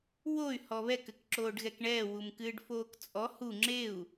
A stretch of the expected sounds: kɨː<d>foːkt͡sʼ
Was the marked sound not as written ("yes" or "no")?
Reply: yes